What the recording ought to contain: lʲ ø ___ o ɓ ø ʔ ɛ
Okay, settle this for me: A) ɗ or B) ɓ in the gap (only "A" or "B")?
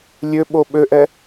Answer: B